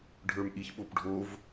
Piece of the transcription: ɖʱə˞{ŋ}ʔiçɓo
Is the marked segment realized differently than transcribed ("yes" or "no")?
yes